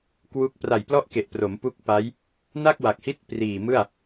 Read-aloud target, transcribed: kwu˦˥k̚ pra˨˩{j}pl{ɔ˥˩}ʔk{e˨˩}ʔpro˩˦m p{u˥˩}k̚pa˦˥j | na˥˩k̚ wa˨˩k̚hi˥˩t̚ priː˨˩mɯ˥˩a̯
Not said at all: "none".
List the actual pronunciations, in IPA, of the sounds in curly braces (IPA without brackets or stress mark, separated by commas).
j, ɔ˥˩, e˨˩, u˦˥